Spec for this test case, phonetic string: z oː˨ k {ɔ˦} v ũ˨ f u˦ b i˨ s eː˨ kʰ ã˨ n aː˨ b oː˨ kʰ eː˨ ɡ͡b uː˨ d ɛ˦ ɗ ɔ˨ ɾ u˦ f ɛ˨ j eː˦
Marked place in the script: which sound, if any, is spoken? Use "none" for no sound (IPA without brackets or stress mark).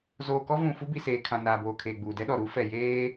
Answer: ɔ˦